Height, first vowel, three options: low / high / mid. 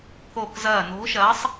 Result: mid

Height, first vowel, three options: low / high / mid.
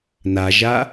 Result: low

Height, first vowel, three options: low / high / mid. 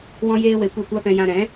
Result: mid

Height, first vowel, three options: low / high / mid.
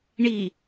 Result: high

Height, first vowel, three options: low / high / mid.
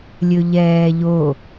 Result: mid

